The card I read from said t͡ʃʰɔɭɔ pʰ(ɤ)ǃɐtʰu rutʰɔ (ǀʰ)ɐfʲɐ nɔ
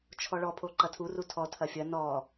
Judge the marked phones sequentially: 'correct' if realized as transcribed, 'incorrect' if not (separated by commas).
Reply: incorrect, incorrect